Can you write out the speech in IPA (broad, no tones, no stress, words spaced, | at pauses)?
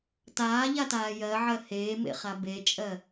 taːʎataː jɜʕɜ heːmḛχa bet͡ʃʼɜ